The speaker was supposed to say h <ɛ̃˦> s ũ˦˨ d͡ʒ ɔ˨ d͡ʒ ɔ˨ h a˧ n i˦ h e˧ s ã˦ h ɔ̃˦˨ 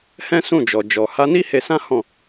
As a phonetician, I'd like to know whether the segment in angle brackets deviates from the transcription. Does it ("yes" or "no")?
no